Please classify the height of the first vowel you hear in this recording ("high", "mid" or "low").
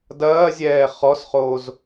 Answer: low